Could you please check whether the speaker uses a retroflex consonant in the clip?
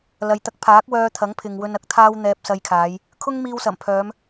no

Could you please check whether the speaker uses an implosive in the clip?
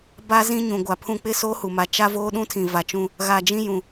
yes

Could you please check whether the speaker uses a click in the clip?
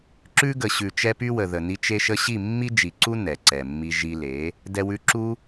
yes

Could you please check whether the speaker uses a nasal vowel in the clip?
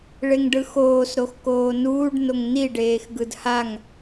no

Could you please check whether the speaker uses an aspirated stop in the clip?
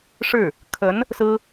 yes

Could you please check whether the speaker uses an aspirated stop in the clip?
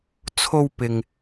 yes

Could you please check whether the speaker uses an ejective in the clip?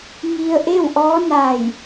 no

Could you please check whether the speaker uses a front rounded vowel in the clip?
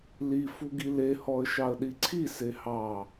no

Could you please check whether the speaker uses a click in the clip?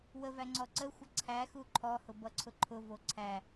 yes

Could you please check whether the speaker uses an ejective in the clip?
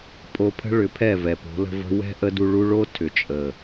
yes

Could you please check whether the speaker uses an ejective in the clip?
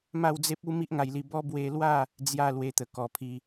no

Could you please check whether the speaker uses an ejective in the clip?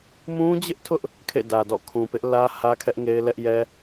no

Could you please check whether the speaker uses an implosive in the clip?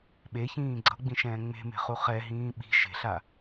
yes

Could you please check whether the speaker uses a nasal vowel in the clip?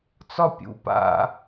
no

